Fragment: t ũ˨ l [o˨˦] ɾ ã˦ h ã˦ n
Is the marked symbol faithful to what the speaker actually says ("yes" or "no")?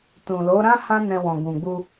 yes